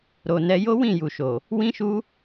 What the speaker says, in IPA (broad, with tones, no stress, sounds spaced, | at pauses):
ɾ o˨ n ɛ˧ j o˦ w ĩ˦˨ j u˨ ʃ o˨ | w ĩ˦ ʃ u˦